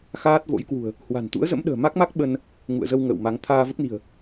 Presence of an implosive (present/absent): present